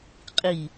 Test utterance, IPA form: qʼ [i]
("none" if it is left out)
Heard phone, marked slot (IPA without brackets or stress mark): i